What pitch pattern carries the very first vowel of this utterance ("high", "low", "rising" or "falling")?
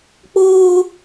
high